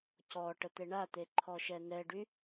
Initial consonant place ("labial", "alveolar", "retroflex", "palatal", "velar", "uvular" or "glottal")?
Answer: palatal